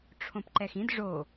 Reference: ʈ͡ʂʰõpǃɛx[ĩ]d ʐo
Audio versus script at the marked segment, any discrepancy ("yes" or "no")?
no